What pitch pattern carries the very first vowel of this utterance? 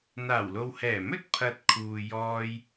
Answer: low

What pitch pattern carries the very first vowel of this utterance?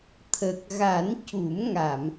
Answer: low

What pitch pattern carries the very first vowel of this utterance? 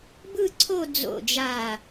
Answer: falling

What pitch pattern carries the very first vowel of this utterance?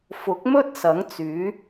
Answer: rising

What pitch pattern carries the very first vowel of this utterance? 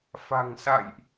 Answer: low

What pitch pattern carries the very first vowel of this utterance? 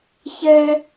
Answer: high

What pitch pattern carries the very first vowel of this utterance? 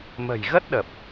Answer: low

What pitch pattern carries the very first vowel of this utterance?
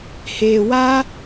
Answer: low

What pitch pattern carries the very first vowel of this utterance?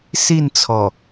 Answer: falling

